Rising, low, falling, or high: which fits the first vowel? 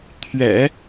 low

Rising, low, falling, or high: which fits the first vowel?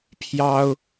high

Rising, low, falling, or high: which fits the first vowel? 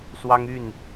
high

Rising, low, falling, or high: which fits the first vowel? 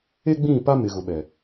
high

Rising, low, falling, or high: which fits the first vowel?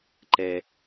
low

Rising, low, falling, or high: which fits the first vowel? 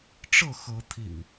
falling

